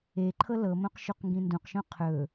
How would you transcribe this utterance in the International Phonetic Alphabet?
e ǃʰ ɤ l ɤ m õ q ʃ u q ŋ ɡ ĩ n d ũ q ʃ õ qʰ ɵ

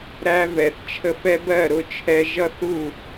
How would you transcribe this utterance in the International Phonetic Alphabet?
ɾ æ˦ v ɛ˨ θ t͡ʃʰ ə˧ f ɛ˧ b ɜ˦˨ ɾ ʊ˦ t͡ʃʰ ɛ˧ ʒ ʌ˦ θ u˦˨

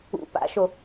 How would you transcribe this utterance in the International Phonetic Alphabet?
ṵ p a̰ ʃ o

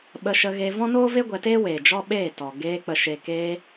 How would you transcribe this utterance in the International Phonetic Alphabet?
ɓ ə˧ ʃ ə˧ ɣ eː˧ v ɔ̃˦ n oː˦ v e˦ ɡʷ ɛ˧ t eː˦ w eː˨ d͡ʒ ɔ˦ ɓ eː˦˨ t ɔ˨ ɡ eː˧ k͡p ə˨ ʃ eː˨ k eː˧

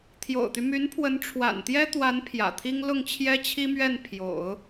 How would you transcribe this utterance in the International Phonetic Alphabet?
t̪ʰ j o̰˨˩ ʊ̯ t̪ y˦ m y˧˥ n pʰ w ə˧˥ n ʈ͡ʂʰ w a̰˨˩ n t̪ j ɛ˥ t̪ w a˧˥ n pʰ j ä̰˨˩ t̪ʰ i˥ ŋ l ʊ˥˩ ŋ t͡ɕʰ j ɛ˥ t͡ɕʰ i˥ m ɥ ɛ˥˩ n pʰ j o̰˨˩˦ ʊ̯

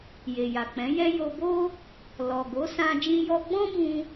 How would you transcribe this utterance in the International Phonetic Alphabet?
j e˨ j a˨ k͡p ɛ̃˨˦ j ɛ˦ j o˧ b o˦ | l ɔ˨ ɡ o˨˦ s ã˧ d͡ʒ ĩ˧ j ɔ˧ ɡ͡b ɔ̃˦ b ũ˧

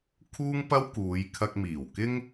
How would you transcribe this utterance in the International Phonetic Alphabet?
kʰ uː˥ ŋ p ɐ˥ w k uː˨˧ j kʰ ɐ˧ k̚ m iː˨˩ w k ɪ˥ ŋ

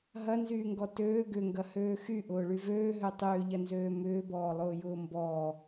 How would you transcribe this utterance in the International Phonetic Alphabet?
ɦ ɐ n z yː ŋ ɡ ɔ t øː ɡ ʏ ŋ ɡ ɐ h øː x y ʔ ʊː ɭ y v øː ɦ ø tˤ ʏː ʎ ɐ n z øː m ʏː b ɔː lˠ ʊː j ʊː m b ɔː

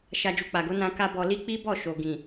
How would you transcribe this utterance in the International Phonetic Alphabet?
ʃ a˧ d͡ʒ u˨ k͡p a˨ ɡ o˨˦ n ã˧ k a˦ b ɔ˧ l i˦ k͡p i˦ b ɔ˦˨ ʃ o˨ ɡ ĩ˨

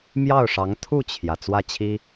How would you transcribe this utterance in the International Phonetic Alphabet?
m j ɑ˥˩ ʊ̯ ʂ ɑ˧˥ ŋ t̪ʰ u˥˩ t͡ɕʰ j ä˩ t͡s w ä˥˩ t͡ɕʰ i˥

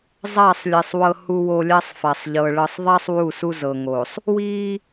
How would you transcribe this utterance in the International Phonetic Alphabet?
zˤ a˦˨ sˤ lʲ ɛ˨ sˤ w ɤ˨ h u˨ w o˨ lʲ a˦ sˤ f a˨ sˤ ʎ ɤ˨ ɭ ɤ˨ sˤ ðˤ a˦ sˤ w u˦˨ s u˦ z ɤ˨ ŋ o˨ sˤ | w i˦

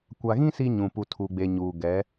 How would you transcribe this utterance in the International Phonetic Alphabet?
kʷ a˨ ɣ ĩ˦ s i˦ ɲ ũ˨ p u˨ tʰ u˨ ɡ͡b e˨ ɲ uː˨ ɡ ɛ˨˦

